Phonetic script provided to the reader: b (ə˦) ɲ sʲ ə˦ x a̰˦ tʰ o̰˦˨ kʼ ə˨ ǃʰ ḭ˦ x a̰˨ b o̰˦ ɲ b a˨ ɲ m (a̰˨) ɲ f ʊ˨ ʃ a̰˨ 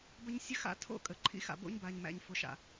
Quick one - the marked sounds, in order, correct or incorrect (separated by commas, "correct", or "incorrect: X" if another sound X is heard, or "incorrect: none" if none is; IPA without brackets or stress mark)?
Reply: correct, incorrect: æ̰˨